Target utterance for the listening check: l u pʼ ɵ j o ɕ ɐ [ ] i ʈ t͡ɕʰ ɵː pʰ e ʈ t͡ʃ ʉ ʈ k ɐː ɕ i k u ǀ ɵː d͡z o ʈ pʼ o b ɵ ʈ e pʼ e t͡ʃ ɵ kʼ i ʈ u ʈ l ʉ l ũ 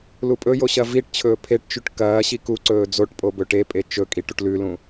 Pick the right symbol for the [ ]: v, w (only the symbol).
v